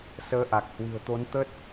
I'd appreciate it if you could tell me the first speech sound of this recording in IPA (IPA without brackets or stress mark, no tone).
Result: s